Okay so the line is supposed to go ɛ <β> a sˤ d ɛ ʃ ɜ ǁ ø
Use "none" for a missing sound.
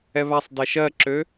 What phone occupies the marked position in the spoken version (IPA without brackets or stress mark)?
β